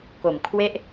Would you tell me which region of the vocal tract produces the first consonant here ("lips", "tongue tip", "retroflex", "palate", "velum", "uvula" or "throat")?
velum